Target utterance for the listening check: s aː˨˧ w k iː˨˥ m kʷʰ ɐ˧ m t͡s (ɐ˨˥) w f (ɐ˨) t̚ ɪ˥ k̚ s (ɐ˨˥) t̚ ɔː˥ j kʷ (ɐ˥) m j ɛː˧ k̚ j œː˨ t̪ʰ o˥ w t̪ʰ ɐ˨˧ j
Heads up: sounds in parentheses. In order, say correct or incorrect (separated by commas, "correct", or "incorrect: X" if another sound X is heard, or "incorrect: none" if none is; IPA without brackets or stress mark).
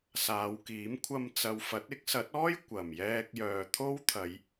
incorrect: ɐ˨˧, incorrect: ɐ˨˥, correct, incorrect: ɐ˨˩